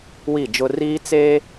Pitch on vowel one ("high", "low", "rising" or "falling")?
falling